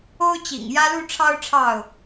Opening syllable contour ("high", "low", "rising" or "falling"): high